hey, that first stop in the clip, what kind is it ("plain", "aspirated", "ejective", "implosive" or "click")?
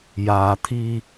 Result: aspirated